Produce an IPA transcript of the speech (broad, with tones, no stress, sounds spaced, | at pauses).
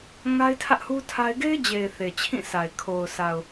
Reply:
ŋ a˦ ɪ̯ tʰ ä˦ ʔ h u˦ tʰ a˦ ɪ̯ ɡ e˦ ɪ̯ d͡ʑ e˨ ɪ̯ θ e˨ t͡ɕʰ ĩ˦˨ s a˨ ɪ̯ kʰ o˨ ʊ̯ s a˨ ʊ̯